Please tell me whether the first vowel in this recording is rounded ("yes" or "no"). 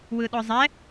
no